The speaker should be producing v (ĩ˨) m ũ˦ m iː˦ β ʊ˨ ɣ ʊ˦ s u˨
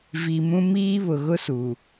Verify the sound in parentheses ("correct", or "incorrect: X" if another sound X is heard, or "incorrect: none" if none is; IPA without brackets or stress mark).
incorrect: i˨